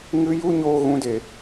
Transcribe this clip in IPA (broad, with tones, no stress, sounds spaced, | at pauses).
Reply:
ŋ ɨ˦ j u˦ ɲ oː˦ ɣ ũ˦ d e˧